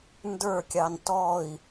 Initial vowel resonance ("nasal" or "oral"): oral